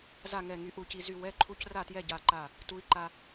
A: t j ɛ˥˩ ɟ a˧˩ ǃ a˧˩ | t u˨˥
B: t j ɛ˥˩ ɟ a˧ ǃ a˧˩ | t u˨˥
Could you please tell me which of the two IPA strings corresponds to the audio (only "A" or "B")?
A